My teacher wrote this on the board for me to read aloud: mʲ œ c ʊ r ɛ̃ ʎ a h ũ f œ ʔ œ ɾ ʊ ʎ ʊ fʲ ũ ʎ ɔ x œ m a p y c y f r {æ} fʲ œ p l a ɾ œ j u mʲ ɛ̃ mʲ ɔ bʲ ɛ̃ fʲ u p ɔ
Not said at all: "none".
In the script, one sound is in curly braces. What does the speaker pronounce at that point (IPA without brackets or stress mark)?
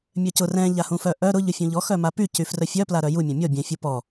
œ